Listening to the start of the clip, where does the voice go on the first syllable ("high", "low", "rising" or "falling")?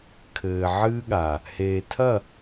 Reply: low